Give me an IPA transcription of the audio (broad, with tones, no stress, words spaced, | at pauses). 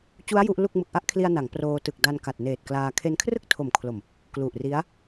t͡ɕu˦˥a̯ ju˦˥ʔlu˥˩k̚ mɯ˨˩k̚ʔa˥˩ʔkʰli˧a̯ na˩˦ŋproː˧ tɯ˨˩k̚da˧n ka˨˩t̚neː˨˩t̚klaː˧ kʰe˧nkʰrɯ˥˩k̚tʰo˨˩mkʰlo˨˩m | klu˨˩ʔri˦˥a̯